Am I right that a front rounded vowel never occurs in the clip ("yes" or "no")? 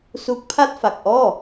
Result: yes